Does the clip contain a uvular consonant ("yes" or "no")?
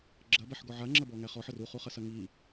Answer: yes